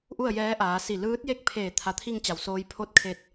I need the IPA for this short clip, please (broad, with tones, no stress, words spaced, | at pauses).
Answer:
ʔu˥˨ə̯jɛː˧˥ʔaː˩˧ si˧˩ lɯː˧˥t̚je˥˨k̚pʰeː˧˩ t̪ʰa˩˧t̪ʰi˧ŋt͡ɕa˩w soː˧j pʰo˧t̚kʰe˧˩t̚